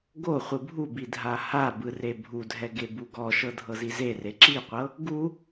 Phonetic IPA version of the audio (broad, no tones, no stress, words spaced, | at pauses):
ɡoχʷɯ bʱubi dʱahabɯ rebʱudʱɛ ɡebuɡɔʃɤ dʱɤzizere ǁiqʷɤ | ɡu